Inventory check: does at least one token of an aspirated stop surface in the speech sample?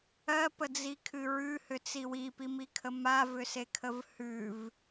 yes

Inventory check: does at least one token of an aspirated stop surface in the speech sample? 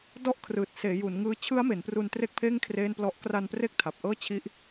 yes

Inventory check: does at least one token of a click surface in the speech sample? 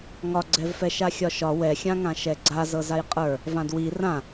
yes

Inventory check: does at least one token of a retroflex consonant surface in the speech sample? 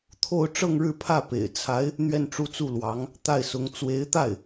yes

